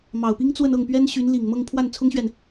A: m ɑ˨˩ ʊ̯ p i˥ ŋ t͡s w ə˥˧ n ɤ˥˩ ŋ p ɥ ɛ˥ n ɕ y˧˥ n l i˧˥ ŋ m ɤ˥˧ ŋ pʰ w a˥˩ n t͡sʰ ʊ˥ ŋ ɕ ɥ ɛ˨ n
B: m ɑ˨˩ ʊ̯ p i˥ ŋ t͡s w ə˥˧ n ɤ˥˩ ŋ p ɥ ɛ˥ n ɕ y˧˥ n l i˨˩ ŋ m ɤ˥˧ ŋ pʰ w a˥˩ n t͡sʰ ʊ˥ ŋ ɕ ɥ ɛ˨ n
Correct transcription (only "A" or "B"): B